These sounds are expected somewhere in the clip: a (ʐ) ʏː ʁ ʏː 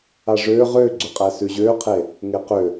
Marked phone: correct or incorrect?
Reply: correct